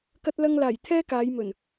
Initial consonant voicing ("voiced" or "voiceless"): voiceless